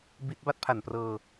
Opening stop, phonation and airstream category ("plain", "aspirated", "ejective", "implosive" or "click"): plain